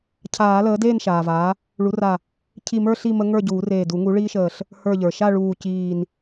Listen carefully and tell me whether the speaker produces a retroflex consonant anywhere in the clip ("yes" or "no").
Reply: yes